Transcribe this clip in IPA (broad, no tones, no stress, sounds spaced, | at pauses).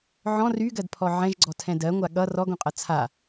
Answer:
ʕ ɔ̃ r y ɡ ɜ d pʰ ɔ ʕ ɛ̃ ʒ ɡ͡ǀ ɔ tʰ ɛ̃ d ɜ ŋʷ a ɠ ʌ r ɔ ɡ õ qʼ ʌ t͡sʰ a